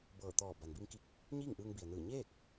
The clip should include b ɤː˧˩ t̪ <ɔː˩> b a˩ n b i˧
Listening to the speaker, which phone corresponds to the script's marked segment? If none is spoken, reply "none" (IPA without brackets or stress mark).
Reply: ɔː˧˩